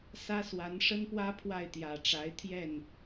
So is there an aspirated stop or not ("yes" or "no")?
yes